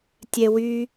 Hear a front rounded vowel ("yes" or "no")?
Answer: yes